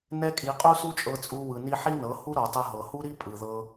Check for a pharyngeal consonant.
present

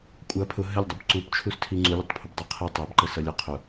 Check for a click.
present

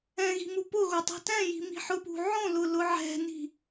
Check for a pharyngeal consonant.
present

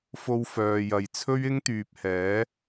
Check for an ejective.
absent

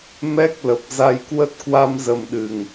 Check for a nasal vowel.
absent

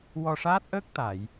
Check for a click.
absent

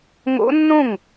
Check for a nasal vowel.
present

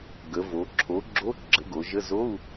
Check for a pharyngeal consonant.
absent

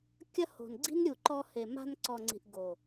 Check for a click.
present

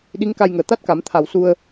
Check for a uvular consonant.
absent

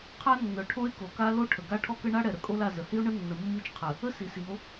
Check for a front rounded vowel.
present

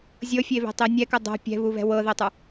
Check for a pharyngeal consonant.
absent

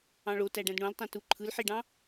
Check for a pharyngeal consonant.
present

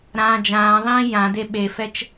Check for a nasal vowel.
present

